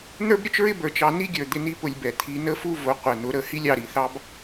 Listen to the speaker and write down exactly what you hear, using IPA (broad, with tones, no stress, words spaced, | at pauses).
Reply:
n̪ə˞˦bɾʲʊ˦t͡ʃɹɪ˦ bə˞˧t͡ʃɑ˧ ni˦ɡʲə˞˨ d̪ɪ˧ni˦pʊ˧lʲbɛ˨ t̪ʰi˧nə˦ fu˦vʊ˨˦ qʷɛ˨n̪ʊ˨˦ɾə˦˨ hi˦lʲɑ˧ ɾi˨θɑ˦b